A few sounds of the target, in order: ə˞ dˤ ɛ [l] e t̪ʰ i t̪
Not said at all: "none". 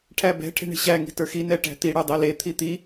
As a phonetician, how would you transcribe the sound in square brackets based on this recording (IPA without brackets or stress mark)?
l